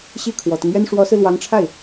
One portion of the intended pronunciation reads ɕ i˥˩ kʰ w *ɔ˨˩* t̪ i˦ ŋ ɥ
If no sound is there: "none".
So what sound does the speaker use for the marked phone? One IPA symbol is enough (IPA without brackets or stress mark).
ɔ˨˩